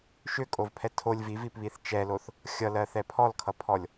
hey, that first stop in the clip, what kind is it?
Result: ejective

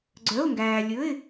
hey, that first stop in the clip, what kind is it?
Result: click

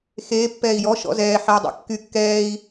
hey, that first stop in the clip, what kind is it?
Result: plain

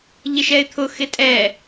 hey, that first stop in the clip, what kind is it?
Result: aspirated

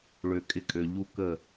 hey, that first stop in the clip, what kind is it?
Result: ejective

